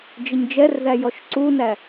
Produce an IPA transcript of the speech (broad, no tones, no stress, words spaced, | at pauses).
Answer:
d͡ʒɪɲd͡ʒɛrðæ jɔʃǀunæ